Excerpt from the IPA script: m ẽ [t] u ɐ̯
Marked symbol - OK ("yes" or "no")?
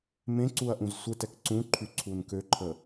no